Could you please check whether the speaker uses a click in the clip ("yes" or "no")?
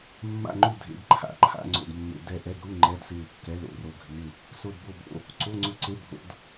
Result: yes